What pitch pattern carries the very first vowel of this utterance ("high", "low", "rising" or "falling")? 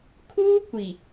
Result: high